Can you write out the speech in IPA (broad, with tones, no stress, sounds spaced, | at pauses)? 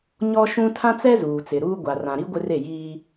ɲ ɔ˦ ʃ ũ˦ tʰ ã˦ t͡s ɛ˦ z uː˨ t͡s ɪ˨ ɾ uː˦ ɡʷ a˨ r ã˨ ɾ i˦ ɡʷ ɪ˦ r e˦˨ j iː˦